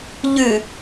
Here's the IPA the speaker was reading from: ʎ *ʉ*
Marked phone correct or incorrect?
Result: correct